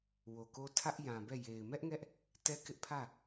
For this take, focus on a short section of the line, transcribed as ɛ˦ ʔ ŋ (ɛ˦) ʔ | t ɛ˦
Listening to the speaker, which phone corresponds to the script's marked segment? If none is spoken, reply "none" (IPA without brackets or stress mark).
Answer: ɛ˦